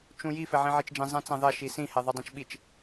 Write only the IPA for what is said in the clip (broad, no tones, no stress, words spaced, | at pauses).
t͡ʃũji fɛʕĩʕit͡ʃd͡ʒĩ zˤɛ̃t͡sɛ̃ðˤɛ ʃisĩ hɛðˤudˤɛ̃t͡ʃɓit͡ʃ